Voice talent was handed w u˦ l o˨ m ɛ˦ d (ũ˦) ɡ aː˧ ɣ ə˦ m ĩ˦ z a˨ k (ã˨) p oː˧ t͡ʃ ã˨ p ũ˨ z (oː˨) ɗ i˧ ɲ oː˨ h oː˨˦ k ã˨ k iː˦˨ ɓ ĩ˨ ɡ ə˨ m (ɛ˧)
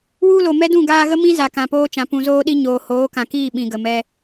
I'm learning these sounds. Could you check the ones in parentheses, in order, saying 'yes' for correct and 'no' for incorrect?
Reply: no, yes, no, yes

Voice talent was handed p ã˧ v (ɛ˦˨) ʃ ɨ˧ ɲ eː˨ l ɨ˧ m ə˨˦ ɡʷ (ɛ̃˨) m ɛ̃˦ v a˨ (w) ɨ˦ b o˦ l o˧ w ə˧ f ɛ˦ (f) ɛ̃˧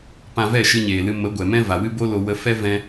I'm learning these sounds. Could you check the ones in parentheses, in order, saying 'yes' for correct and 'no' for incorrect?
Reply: yes, no, yes, no

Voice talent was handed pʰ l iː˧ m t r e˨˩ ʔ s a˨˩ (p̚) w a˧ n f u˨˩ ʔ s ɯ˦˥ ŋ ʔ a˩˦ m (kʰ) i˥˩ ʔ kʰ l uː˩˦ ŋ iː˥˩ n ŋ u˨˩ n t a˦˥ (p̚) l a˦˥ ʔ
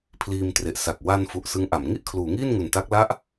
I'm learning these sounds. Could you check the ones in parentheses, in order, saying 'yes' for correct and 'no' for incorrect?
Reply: no, no, no

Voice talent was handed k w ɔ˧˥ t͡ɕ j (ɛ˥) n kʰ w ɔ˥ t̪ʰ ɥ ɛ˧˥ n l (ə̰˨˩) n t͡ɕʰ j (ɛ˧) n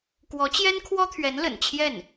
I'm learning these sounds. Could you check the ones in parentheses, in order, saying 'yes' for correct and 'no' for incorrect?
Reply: yes, yes, no

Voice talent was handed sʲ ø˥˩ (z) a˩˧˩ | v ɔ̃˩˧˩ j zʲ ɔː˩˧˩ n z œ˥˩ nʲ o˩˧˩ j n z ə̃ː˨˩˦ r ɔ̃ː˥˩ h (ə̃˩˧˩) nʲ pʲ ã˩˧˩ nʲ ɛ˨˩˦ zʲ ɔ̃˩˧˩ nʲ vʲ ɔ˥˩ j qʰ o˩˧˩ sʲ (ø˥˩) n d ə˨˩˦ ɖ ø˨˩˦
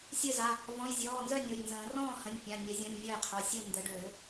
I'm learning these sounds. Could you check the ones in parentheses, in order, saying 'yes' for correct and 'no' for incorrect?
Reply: yes, yes, no

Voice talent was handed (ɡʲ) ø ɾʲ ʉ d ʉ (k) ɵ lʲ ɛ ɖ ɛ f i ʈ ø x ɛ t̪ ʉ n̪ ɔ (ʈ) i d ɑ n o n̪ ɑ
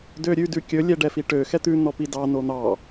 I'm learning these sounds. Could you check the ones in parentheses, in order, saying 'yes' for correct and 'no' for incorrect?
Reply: no, no, no

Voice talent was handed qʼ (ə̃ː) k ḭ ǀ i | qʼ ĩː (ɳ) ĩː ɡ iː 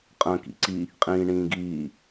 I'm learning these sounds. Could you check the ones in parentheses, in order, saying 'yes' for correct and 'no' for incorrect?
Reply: yes, yes

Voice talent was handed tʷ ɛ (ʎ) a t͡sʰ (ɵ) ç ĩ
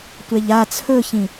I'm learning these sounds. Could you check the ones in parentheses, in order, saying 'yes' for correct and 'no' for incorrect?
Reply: yes, yes

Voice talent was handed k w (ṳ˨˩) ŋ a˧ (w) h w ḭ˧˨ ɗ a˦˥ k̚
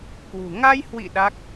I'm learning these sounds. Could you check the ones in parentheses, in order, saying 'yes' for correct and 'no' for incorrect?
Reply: yes, no

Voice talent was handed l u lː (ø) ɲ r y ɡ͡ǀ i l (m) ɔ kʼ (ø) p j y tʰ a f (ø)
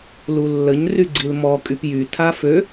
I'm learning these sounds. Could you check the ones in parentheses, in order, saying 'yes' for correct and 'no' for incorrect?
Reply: no, yes, no, yes

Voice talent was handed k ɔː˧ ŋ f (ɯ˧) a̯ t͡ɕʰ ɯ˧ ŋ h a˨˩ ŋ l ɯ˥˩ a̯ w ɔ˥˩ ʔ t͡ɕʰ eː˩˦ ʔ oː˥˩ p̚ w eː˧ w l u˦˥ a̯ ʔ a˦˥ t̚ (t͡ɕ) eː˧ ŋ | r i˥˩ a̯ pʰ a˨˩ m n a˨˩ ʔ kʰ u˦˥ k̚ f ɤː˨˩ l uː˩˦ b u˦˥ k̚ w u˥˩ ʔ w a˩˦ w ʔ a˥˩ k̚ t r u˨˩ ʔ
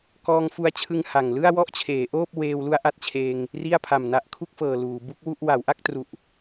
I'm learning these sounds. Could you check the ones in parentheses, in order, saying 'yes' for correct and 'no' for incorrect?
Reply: no, no

